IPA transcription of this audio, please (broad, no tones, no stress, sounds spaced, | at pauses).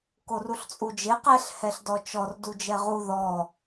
k o r u ɬ t͡sʼ u d͡ʒ e q ɛ ɬ h ɛ ɬ d ɔ t͡ʃ ɔ r d u d͡ʒ ɛ ʁ u ð ɔ